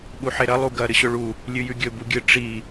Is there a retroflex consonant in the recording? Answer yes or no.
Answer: yes